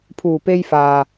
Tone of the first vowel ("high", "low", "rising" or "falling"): low